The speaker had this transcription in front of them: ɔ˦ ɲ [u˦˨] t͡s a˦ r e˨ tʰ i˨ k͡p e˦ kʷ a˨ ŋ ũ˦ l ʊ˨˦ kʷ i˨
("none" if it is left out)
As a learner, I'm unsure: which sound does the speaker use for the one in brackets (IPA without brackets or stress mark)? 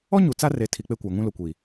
u˨